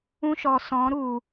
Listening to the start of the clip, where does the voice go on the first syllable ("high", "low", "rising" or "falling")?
high